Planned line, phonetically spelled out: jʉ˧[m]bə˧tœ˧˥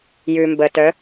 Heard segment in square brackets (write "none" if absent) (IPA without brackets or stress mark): m